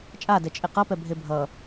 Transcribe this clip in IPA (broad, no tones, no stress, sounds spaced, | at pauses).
t͡ʃʼ a d ɛ t͡ʃʼ e q ʌ p ɛ bʱ e bʱ ʌ